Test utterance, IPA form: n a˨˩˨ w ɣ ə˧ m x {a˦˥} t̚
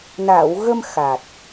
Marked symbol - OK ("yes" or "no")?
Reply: no